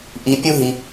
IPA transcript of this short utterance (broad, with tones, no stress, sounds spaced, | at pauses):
ʔ i˧ pʲ u˦ ɦ i˧